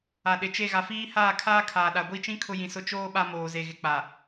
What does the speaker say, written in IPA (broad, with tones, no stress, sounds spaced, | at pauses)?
a˨ ɗ ɪ˨ t͡ʃ e˦˨ ɣ a˨ f iː˦ h aː˦˨ kʰ aː˦ kʰ aː˨ ɗ a˨ ɡʷ i˦˨ t͡ʃ ĩ˦ kʰ ʊ˦ j ĩ˨ s ʊ˦ t͡ʃ oː˦ ɓ a˦ m oː˨ z e˨ ɣ ɪ˨ k͡p a˨